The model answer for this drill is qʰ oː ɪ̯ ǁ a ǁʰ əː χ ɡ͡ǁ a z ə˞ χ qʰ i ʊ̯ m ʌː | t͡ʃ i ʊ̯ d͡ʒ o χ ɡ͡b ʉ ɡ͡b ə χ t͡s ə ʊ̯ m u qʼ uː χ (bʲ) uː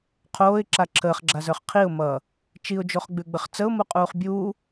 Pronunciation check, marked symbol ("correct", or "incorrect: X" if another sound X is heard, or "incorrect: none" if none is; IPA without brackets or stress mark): correct